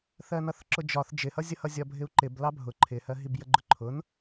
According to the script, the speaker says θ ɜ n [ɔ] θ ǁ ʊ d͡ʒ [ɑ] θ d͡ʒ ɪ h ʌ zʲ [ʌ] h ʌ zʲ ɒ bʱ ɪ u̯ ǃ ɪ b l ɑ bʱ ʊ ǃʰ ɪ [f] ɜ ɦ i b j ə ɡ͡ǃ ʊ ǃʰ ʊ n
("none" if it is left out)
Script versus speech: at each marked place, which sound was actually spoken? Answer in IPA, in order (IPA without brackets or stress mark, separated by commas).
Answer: ʌ, ɒ, ʌ, h